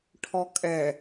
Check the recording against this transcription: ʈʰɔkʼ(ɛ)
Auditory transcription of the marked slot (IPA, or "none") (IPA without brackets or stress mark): ɛ